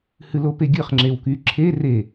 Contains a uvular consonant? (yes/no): yes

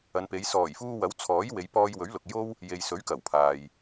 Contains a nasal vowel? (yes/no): no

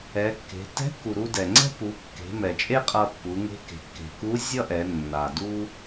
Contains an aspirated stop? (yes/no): no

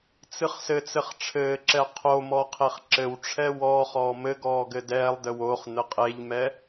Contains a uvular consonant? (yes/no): yes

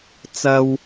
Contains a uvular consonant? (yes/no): no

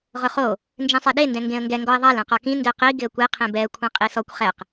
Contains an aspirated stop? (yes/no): yes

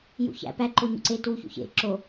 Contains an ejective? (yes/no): no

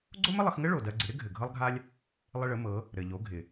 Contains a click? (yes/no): yes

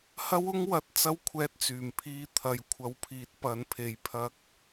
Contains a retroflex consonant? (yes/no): no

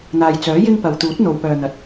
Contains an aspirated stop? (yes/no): no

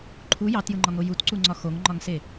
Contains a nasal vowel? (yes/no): no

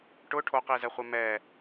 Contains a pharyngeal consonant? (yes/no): no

